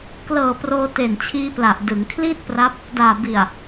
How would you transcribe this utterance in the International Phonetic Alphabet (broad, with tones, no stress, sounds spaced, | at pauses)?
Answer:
k l ɤː˨˩ p r oː˧ t e˨˩ n t͡ɕʰ iː˧ p l a˨˩ ʔ d ɯ˩˦ ŋ kʰ l iː˥˩ t̚ p r a˦˥ p̚ | d aː˨˩ b i˨˩ a̯